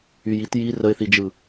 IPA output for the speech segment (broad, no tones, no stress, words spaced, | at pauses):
yjit ji rəɪ̯θid͡ʒɯ